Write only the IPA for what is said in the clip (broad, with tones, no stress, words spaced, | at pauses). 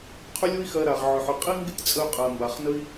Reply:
qʰʏ˦lʲo˦i̯xɜ˧ ɾa˨ʁʕʏ˨ħʏ˨ qʼi˦ŋɡɪ˦tʲt͡sʼə˧y̯ qʼɜ˨ mba˨χnə˦i̯